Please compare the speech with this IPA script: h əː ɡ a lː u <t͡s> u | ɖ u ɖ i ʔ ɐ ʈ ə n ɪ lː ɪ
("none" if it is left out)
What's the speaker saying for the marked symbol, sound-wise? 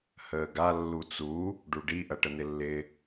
t͡s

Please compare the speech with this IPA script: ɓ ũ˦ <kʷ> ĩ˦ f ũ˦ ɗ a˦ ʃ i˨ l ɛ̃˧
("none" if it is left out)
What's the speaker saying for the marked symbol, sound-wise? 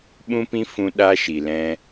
p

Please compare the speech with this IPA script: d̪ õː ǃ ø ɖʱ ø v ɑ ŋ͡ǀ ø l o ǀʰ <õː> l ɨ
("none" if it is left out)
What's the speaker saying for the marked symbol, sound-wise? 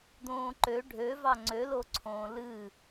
õː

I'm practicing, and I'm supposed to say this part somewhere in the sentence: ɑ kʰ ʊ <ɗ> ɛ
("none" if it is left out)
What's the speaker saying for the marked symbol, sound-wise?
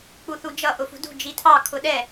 ɗ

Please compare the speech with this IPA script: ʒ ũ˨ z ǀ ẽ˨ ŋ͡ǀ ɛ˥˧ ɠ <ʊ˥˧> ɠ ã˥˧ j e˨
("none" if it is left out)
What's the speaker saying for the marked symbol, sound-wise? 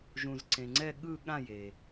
ɯ˥˧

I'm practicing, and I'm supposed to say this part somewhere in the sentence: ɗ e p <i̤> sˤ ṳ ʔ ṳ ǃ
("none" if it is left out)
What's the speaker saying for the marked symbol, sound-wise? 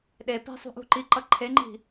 i̤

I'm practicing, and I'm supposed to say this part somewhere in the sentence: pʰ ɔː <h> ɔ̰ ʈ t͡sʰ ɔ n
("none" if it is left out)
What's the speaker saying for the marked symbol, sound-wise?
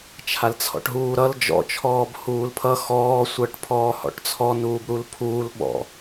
h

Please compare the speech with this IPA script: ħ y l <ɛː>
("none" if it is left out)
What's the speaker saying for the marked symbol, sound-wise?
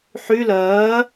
ɜː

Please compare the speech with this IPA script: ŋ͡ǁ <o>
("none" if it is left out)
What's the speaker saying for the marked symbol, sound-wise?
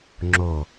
o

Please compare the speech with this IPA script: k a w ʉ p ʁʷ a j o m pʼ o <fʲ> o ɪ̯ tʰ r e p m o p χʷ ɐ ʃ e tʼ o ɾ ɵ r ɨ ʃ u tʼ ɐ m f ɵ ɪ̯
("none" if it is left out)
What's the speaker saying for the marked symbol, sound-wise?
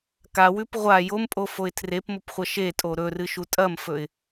f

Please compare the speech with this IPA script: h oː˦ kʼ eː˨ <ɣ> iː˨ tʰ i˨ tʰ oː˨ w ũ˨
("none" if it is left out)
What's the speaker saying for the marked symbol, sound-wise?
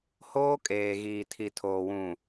ɣ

